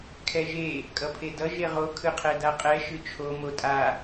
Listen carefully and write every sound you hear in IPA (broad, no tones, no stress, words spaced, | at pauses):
kʰɛʒe | kʼʌpʰedʌ ʒeʁo kʰɯqʰɛdaqʼɛ ʃɯt͡ʃʰo motʼa